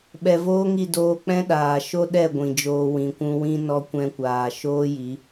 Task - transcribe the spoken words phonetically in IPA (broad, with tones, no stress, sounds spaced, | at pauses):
ɓ ɛ˨ v oː˦ ŋ i˦˨ d oː˧ k͡p ɛ̃˦ ɗ aː˨ ʃ o˦ ɗ ɛ˦˨ ɡʷ ĩ˨ d͡ʒ oː˧ w ĩ˨ kʷ ũ˧ w ĩ˦ n ɔ˦ kʷ ɛ̃˧ kʷ aː˨ ʃ oː˦ j i˨˦